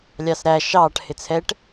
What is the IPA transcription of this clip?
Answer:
lʲ ɑ s ɾ æ ʃ ɑː ʈ h ɪ t͡sʰ ɛ ʈ

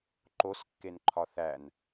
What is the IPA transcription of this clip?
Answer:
ǃ o s kː e n ǃʰ ɒ θ æ n

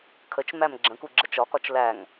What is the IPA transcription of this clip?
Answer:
kʰ ə t͡ʃ m æ m ɡ͡ǁ ə̃ k u ɡ͡ǁ ə t͡ʃ ɒ k ɒ t͡ʃ l æ ŋ

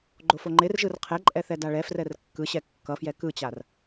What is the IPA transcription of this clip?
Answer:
ɡ͡ǃ o f o ŋ͡ǃ e r ʒ ɯ r qʰ ɛ ǃʼ ɛ θ ɛ d a ɭ ɛ f r ɛ r kː ɯ ɕ ɛ kː ʌ f j ɛ k ɯ t͡ɕ a r

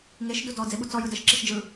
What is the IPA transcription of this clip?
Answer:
ŋ e ʃ d u d ɔ d͡z e ɓ u t͡s ɔ j ɯ d ə ʃ ǁ i ʃ d͡ʒ ɯ

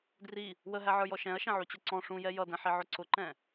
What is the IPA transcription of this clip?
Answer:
d r i | w ə ɦ æ ʕ ə˞ j ɔ ʃ ɛ̃ ɐ̯ ʃ ɛ̃ ʕ u t͡ɕ ʊ ǀ ɔ̃ ʂ ũ j ɛ j ʌ d ɛ̃ ħ i ʕ ʊ ǀ ʊ ǃ ɛ̃

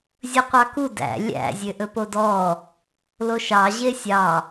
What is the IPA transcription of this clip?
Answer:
zʲ ɵ qʷ ɑ k u d æ̰ lʲ æ̰ zʲ ø ʔ ɵ p o d ɔ | l o ʃ ɑ ʑ e sʲ ɑ

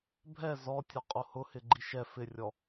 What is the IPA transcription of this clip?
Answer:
bʱ ɛ z ɔ tʲ ɔ qʼ o h ʊ h ɪ ɡ͡ǃ i ʃ ɛ f ɪ rʲ ɔ

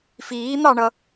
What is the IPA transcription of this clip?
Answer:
f iː n̪ ɑ ɳ ʌ

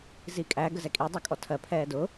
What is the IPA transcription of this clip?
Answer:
z i kʼ æ ɡ ə z ɛ kʼ i dˤ ɜ kʼ ɔ tʰ ɜ pʰ ɛː d ʊː

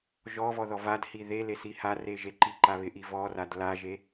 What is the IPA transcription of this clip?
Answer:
ʒ ɔ v ɔ ð ɔ v a d h i ð e l e s i h a r e ʒ e ǃ i ǃ a β ɪ ʔ i v ɔ r a d l a ʒ e

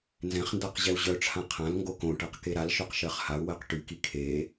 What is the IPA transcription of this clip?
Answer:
n z ɛ̃ χ n d a q ʑ ɛ u̯ ʑ œ ʈ͡ʂʰ ã qʰ ã l ŋ ɡ o k õ ʈ ɜ q k e ɾ a l ʃ œ q ʃ ɜ χ h a u̯ w ɜ q ʈ y k i kʰ e

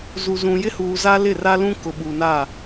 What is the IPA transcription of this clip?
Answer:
z u˨ z ũ˨ j ɪ˦ h uː˨ z a˦ l ɪ˦˨ r a˦ l ũ˦ k ʊ˨ ɓ u˨ n a˦˨

